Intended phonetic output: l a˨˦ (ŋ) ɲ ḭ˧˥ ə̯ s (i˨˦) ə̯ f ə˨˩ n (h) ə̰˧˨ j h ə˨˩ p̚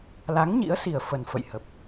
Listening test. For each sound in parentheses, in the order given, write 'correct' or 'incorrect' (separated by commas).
correct, incorrect, incorrect